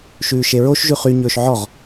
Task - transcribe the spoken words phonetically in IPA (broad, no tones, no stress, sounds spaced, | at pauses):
ʃ ʉː ʃ e ɹ o ʃ ʒ ʉ χ y ɲ ɵː ʃ ʕ ɔ ʁ